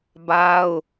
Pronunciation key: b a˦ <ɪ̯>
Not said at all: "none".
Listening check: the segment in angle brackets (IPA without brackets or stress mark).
ʊ̯